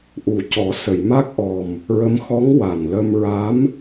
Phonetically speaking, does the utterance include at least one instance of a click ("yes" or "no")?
no